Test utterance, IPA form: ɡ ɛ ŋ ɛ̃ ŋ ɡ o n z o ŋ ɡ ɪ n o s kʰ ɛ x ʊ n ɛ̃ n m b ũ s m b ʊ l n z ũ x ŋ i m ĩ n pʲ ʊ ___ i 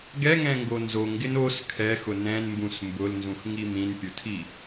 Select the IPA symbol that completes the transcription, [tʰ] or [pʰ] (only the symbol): tʰ